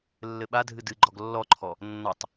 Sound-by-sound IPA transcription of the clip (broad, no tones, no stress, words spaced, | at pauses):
lːɘɓadʱɨ dɨɡ͡ǃɔɡ lːɔǃʰɔ | nːɔtˤ